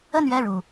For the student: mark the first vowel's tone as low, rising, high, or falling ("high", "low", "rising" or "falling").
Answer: falling